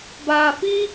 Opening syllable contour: low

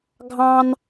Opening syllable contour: high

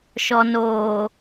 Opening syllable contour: low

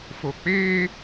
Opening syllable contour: low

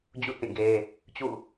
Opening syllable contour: falling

